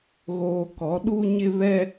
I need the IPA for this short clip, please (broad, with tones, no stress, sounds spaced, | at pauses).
ɣ oː˨ k ɔ˨˦ ɗ u˦ ɲ ɪ˦ β ɛ˦